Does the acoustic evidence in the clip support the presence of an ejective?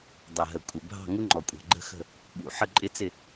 yes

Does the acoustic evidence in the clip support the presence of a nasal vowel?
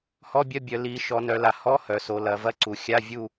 no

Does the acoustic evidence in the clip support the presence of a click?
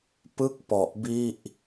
no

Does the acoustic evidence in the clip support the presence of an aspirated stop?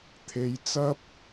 yes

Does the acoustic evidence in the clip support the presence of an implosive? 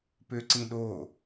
yes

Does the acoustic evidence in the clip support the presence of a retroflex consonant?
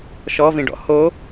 yes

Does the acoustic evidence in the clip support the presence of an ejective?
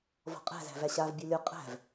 yes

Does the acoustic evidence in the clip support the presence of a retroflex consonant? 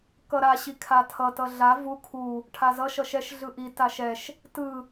yes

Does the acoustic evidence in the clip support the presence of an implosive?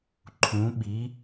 yes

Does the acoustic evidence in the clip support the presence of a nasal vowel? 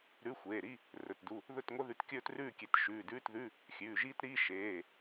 no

